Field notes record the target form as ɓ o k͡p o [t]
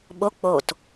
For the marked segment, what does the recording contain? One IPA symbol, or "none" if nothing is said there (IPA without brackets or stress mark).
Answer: t